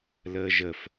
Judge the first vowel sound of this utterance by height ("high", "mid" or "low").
mid